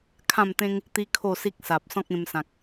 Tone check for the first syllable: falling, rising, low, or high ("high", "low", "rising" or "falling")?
falling